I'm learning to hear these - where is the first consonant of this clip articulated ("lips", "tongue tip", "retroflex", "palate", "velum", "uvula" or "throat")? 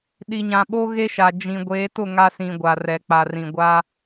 tongue tip